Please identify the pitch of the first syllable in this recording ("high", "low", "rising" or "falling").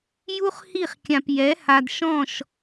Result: high